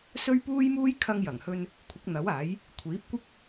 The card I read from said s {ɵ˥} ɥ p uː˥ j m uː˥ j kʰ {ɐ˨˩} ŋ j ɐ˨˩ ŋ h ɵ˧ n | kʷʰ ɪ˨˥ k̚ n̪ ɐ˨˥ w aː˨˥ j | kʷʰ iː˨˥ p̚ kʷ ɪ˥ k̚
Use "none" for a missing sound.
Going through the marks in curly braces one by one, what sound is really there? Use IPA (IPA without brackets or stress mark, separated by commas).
ɵ˥, ɐ˧